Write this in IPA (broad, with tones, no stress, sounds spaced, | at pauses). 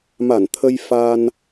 m a˧˩ n t̪ʰ ə˧ j f a˧ n